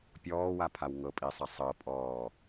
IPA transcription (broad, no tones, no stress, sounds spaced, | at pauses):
pʲ ɔː w a pʰ a w ŋ ɤ pʼ i sˤ ɐ sˤ ɤ pʼ ɔː